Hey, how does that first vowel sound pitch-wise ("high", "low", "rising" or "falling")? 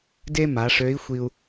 high